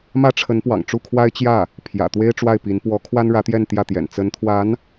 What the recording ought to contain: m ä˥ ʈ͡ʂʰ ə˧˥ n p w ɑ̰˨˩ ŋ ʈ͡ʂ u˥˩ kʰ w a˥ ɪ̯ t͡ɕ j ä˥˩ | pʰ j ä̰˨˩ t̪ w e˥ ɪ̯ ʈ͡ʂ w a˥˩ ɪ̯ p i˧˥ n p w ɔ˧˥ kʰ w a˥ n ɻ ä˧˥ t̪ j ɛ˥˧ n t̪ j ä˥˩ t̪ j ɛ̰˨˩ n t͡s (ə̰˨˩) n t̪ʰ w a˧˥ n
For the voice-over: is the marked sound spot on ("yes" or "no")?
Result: no